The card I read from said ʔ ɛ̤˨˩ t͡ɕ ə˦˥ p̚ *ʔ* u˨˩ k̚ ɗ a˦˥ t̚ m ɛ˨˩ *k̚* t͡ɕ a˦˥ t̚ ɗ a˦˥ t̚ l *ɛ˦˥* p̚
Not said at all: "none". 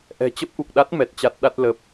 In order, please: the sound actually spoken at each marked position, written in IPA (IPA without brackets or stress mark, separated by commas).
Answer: ʔ, t̚, ə˦˥